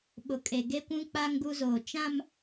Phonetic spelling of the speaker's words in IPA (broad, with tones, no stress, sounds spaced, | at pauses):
ɓ ʊ˨ kʼ e˨ ɡ e˦ kʷ ũ˦ k͡p a˦ ŋ ɡ u˦ z oː˨ t͡ʃ ã˦ m